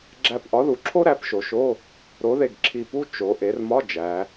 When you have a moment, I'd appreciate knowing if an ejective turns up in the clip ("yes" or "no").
no